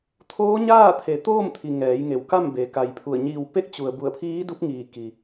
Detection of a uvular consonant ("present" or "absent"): absent